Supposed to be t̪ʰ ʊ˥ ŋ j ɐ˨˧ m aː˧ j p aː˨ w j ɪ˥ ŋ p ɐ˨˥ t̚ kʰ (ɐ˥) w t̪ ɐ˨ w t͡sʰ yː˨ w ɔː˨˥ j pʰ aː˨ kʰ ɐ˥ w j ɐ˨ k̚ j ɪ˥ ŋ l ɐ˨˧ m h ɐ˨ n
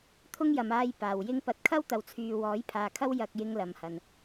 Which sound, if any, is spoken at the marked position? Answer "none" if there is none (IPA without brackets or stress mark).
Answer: ɐ˥